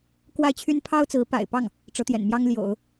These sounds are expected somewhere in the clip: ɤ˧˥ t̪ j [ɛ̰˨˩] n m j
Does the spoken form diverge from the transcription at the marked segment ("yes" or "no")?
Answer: no